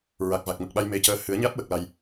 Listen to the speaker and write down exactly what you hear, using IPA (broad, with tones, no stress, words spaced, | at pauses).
ɹa˨˩k̚va˨˩k̚mə˨˩k̚ɓa˧j me˧˥cəː˧˥ hɨ˨˩˦ə̯ɲa˦˥t̚ wə˨˩k̚la˨˩j